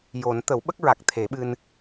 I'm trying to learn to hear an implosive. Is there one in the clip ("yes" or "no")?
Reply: yes